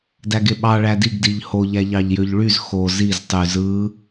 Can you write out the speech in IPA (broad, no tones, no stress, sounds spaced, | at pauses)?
d æ ɡ e ɓ ɑ ɭ æ d i ɡ d i ʎ h o ʎ æ ʎ ɑ ʎ j ø ʎ ɭ y z x o z i z tˤ y z ɯ